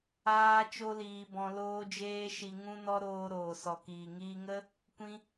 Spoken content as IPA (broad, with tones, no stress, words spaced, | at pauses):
aː˦ t͡ʃo˦liː˧bɔ̃˧ loː˦d͡ʒeː˦ ʃi˧ ŋũ˦nɔ˦ɾoː˧ ɾoː˨sɔ˨kiː˨ŋiː˧ ŋə˦ | kʷĩ˦